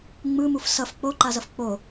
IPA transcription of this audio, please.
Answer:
ŋ͡m ɯ m u f s ʌ f k͡p o ǃ a z ʌ f k͡p o

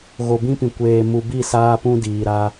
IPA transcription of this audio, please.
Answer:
ɣ o˨ b ĩ˦ p ĩ˨ kʷ eː˨ m u˨ b i˦˨ s aː˦ p ũ˦ d iː˨ ɾ a˦

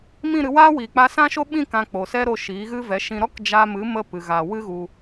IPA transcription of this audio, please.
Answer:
m ĩ˦˨ ɾ ɨ˧ w aː˦ w iː˨ k͡p a˧ s ã˦ ʃ o˦ ɓ ĩ˦˨ k ã˧ k͡p o˨ s ɛ˦ ɾ o˧ ʃ iː˨˦ ɣ ɨ˦ v ɛ˨˦ ʃ ĩ˧ ɾ ɔ˦ k d͡ʒ a˧ m ɨ˨˦ m ə˧ p ɨ˨ ɣ aː˨ w ɨ˦ ɣ u˧

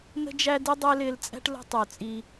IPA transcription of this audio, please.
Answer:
n ə̤˦ d͡ʒ æ˦ d i˦ dˤ ɛ˦ l ɪː˧ l t͡sʼ æ̤˦ ʈ l ə̤˦ tˤ ʊː˨ t͡sʼ i˧

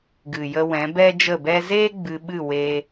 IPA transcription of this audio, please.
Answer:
ɡ ɨ˨ j ə˧ w ɛ̃˨˦ b ɛ˦ d͡ʒ ə˦˨ b ɛ˦ z e˦ ɡ͡b ɨ˧ ɓ ɨ˦˨ w e˧

